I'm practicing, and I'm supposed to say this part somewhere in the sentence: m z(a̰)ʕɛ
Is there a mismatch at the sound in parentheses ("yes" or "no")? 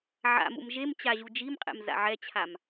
no